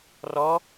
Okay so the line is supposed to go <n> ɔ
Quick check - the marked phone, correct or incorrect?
incorrect: r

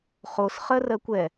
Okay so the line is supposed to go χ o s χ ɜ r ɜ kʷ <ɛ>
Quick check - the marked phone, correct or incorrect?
correct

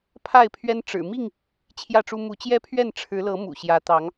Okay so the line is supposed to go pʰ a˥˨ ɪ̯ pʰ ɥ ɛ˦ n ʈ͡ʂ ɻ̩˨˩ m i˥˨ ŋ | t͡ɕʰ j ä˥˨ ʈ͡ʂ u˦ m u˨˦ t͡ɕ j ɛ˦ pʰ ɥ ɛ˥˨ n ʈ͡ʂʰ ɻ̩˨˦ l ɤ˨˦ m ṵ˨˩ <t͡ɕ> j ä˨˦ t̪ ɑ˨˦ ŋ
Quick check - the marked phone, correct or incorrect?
incorrect: ɕ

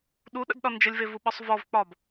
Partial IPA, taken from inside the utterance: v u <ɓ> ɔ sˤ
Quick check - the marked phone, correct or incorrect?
correct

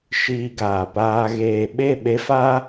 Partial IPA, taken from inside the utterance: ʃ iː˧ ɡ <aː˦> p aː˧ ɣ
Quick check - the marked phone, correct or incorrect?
incorrect: aː˨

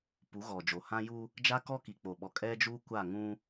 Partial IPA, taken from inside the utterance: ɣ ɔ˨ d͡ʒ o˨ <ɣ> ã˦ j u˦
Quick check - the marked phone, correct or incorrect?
incorrect: h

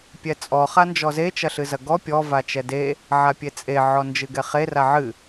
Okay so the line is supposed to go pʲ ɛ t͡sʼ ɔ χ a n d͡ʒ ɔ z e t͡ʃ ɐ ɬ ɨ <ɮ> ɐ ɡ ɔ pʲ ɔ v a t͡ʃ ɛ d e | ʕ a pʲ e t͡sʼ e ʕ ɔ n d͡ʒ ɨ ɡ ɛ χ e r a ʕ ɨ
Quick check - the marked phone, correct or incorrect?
incorrect: z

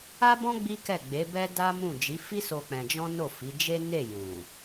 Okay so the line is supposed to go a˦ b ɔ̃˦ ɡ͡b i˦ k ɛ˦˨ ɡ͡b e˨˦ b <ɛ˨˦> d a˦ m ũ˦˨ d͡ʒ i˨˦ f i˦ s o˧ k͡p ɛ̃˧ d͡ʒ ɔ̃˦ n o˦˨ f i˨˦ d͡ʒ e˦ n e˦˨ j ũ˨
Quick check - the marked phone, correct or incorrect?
incorrect: ɛ˦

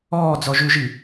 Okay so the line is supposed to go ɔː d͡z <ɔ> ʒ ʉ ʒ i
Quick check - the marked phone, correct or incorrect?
correct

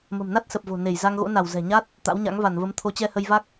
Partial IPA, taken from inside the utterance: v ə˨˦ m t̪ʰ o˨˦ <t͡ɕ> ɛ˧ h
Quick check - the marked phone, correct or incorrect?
correct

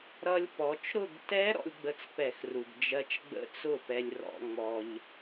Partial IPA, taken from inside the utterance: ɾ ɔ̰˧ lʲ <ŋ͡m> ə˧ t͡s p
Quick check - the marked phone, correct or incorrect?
incorrect: ɡ͡b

